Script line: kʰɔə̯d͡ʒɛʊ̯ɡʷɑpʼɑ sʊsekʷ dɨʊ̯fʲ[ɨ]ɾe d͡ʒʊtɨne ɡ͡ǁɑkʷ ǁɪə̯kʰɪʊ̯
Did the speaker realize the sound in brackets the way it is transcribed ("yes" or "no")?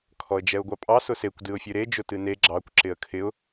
yes